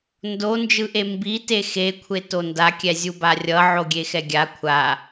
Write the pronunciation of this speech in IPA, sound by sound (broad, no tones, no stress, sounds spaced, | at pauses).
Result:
n d o n d͡ʒ ɯ ʔ e m b i t e x e kʷʰ e t o n d a kʲ ɛ zʲ u b a rʲ ʌ ʕ o ɡʲ e x ɛ ɡʲ a kʷʰ a